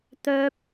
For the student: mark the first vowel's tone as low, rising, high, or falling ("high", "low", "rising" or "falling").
high